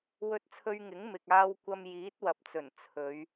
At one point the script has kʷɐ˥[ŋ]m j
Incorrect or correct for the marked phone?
incorrect: none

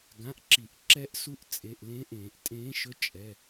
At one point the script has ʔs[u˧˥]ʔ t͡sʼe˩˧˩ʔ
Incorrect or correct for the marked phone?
correct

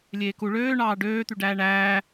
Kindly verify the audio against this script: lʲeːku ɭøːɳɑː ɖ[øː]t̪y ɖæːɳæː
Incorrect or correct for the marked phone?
correct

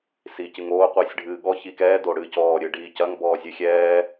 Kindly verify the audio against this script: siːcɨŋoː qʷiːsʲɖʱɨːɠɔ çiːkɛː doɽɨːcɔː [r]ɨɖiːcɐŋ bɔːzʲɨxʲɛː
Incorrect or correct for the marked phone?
incorrect: ɾʲ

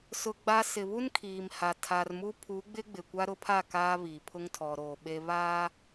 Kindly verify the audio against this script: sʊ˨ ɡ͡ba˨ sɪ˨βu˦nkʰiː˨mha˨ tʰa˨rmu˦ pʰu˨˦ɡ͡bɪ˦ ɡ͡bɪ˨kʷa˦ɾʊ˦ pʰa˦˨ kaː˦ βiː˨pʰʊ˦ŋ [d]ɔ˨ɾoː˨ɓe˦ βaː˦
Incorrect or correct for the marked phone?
incorrect: tʰ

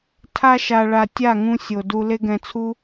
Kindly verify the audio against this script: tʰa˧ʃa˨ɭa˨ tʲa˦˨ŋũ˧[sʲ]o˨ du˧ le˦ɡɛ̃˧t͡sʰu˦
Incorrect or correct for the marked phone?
correct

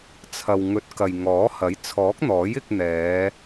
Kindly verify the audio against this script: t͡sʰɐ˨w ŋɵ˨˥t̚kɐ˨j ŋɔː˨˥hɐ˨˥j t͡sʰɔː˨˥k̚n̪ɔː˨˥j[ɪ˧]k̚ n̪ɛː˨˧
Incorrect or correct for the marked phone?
correct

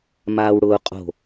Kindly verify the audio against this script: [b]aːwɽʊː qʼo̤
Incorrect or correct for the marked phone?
incorrect: m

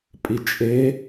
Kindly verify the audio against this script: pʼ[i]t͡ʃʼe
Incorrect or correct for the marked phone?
correct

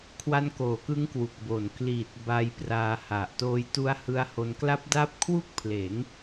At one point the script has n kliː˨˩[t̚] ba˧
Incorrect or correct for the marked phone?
correct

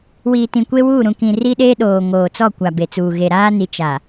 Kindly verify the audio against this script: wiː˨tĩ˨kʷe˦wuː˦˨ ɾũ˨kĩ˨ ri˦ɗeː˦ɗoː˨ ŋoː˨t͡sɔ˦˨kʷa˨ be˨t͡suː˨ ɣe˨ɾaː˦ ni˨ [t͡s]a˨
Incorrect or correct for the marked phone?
incorrect: t͡ʃ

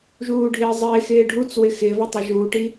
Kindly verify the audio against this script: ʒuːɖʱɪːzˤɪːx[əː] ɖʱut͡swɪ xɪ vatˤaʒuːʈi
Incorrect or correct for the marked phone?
incorrect: ɪː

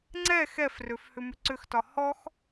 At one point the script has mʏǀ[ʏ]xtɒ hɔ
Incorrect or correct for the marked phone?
correct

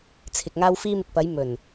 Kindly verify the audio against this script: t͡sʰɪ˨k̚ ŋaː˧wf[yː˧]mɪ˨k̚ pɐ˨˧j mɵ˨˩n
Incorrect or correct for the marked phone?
incorrect: iː˧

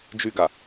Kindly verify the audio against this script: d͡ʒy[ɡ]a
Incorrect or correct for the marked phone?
correct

